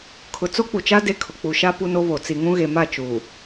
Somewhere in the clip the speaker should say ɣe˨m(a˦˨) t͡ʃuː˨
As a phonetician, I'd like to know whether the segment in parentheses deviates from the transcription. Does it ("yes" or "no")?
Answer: no